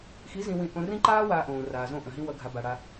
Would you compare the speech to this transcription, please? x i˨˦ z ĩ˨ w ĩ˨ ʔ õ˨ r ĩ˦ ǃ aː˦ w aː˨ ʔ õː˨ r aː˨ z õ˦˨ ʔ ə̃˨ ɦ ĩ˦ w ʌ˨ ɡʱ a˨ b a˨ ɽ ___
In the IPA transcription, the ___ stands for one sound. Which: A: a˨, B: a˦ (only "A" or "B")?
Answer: B